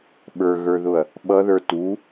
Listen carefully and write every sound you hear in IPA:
ɓ ə˞ ɣ ə˞ ð ʊ ɐ̯ | ɓ ʌ ð ə˞ t u

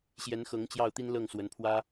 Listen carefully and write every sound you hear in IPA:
ɕ j ɛ˧˥ n x ɤ˧˥ ŋ t͡ɕ j ɑ˥˩ ʊ̯ t̪ i˥ n l ɤ˥˩ ŋ s w ə˧˥ n pʰ w ä˥

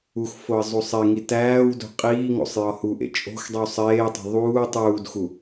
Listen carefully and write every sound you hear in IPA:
u x f o ə̯ zˤ u sˤ e ŋ i t æː w d o̤ qʼ iː ŋ o̰ sˤ j ɒ h u ʔ ḛ t͡ʃʼ o̤ x dˤ i w sˤ eː tˤ o̤ ðˤ uː tˤ uː d x u

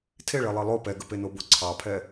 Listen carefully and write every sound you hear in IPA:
tʰ e ɭ e lˠ ɛ lˠ o p ɛ ɡ ə p e n o b o ǀʰ ɑ pʰ ɛ

